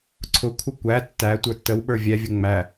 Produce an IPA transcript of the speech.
ǀʰ ʊ kʷʰ ə kʷ æ tː æ tʷ ə˞ tː ə w ɓ ə˞ vʲ ɛ vʲ ə ŋ͡m æ

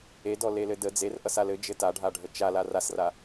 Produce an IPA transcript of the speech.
e d ɔ l e l ɘ d ə d͡z e r ʔ ʌ s a l ɘ d͡ʒ ɘ t a ɖʱ a ɖʱ ə t͡ʃ a l a r a s r a

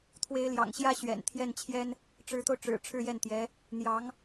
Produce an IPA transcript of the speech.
t̪ʰ w e˧˥ ɪ̯ l j ɑ̰˨˩ ŋ ɕ j ä˧˥ ɕ ɥ ɛ̰˨˩ n t̪ʰ j ɛ˥˩ n t͡ɕʰ j ɛ˥ n | ʈ͡ʂ ɻ̩˧˥ t̪ o˧ ʊ̯ ʈ͡ʂ ɻ̩˨˩ ʈ͡ʂʰ ɻ̩˥˧ j ɛ˥˩ n t̪ j ɛ˧˥ | n̪ j ɑ˧˥ ŋ

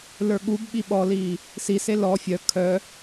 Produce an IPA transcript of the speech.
l ə˞ ɠ u b ɓ i ɓ ɔ l iː | s i s e l ɔ fʲ œ kʰ œ

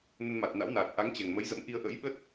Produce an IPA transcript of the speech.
n ə˧ n m a˨˩ t̚ n a̰˧˥ w n aː˨˩ t̚ ʔ a˨˦ ŋ t͡ɕ ɛ˨˩ ŋ m ə˨˦ j z ə̰˧˥ m ʔ i˧ ə̯ ʔ ə̰˧˥ j ɓ ə˦˥ t̚

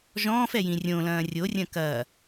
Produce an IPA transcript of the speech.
ʒ ɔ̃ː f ɛ j ĩ rʲ õ l ɐ̃ː rʲ o rʲ ɐ̃ k ɐː

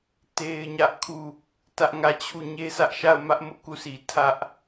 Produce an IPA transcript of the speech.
t e˦ ɪ̯ ɲ ä˦ ʔ kʰ u˦˨ | t ä˦ ʔ ŋ ä˦˨ t͡ɕʰ u˦˨ ɲ e˦ sʰ ä˦ ʔ ʃ a˦˨ ʊ̯ m ä˦ ʔ m ʊ˦ ʔ k u˦˨ sʰ i˨ tʰ ä˦ ʔ

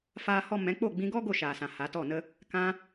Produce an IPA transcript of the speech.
f aː˦ h ɔ˦ m ɛ̃˨˦ k͡p o˦˨ ɡ͡b ĩ˧ ɡ ɔ˦ ɡ o˦˨ ʃ aː˨ s ã˨ h a˨˦ t ɔ˦˨ n ə˦ | k ã˧

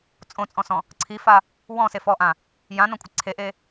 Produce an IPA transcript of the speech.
t͡sʼ õ t͡sʼ ɔ̃ s ɔ̃ | ǀʰ i f a | w ɔ̃ s e f ɔ ʔ ã | j ã n ɔ̃ kʷʼ ɪ ǀʰ e ʔ e

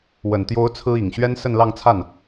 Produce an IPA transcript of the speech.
w ə˨˩ n t̪ j o˧˥ ʊ̯ t͡sʰ ɹ̩˥ i˨˩ ŋ ɕ ɥ ɛ˥ n s ə˥˧ n l ɑ˥˧ ŋ t͡sʰ a˥˩ n

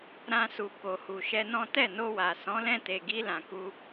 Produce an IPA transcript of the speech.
ɾ ã˧ s u˨ k o˨ h u˨ ʃ ɛ˧ n ɔ̃˦ t ɛ˦˨ n o˧ w a˨ s ɔ̃˨˦ l ɛ̃˧ t e˨ ɡ i˧ l ã˨ k u˧

